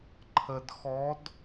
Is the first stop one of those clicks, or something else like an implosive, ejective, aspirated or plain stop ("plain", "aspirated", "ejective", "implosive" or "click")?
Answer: click